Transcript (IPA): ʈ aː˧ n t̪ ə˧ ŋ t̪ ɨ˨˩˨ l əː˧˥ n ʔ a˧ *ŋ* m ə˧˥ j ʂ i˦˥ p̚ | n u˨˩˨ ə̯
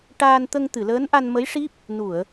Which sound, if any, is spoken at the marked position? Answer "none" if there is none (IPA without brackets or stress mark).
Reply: n